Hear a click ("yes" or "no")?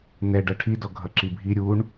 yes